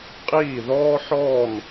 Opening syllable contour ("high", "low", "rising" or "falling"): falling